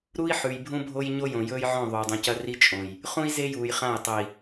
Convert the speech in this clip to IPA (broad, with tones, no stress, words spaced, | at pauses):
ɾu˦i̯ ħʉ˨jbʱũ˦bʱo˦j ɲo˦jõ˨jɵː˦jʕõ˦˨ ðˤoː˨dˤũ˨cɐ˦ ri˦ t͡ʃʼõ˨j | χũ˦i̯ze˦juː˨jχã˦˨j tˤɵ˨i̯